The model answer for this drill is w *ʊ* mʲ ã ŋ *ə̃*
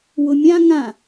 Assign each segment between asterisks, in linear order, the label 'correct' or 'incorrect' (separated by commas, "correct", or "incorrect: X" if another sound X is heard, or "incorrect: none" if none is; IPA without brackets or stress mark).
correct, incorrect: ã